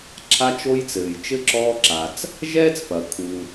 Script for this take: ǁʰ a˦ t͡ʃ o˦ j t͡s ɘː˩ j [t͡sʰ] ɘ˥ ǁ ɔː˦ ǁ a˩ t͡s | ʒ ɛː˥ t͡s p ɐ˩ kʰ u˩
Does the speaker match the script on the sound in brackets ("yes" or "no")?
no